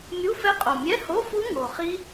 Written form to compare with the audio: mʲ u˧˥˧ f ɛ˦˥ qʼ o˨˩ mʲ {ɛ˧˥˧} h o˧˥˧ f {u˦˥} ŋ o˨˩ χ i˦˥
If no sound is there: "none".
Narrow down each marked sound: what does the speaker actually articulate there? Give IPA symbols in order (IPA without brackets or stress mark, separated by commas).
ɛ˧˥˧, u˦˥